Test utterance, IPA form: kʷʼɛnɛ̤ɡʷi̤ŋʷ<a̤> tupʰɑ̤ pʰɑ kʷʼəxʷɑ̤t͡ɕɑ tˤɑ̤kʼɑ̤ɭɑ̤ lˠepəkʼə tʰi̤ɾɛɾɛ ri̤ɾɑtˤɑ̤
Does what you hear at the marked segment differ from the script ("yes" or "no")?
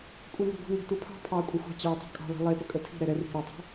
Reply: yes